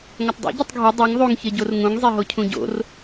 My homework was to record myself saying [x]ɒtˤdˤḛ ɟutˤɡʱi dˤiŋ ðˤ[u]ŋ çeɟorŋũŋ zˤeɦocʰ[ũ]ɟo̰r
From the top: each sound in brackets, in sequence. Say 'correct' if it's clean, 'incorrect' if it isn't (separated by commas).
incorrect, correct, correct